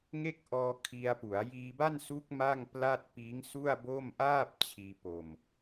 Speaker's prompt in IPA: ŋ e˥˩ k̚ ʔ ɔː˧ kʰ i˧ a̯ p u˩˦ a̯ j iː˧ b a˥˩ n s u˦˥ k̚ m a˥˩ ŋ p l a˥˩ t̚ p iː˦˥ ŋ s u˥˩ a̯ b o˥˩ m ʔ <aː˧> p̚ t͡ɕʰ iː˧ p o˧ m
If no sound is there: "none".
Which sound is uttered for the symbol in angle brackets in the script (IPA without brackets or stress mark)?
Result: aː˥˩